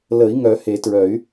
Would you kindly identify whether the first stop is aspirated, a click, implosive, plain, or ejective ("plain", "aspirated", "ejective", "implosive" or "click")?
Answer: plain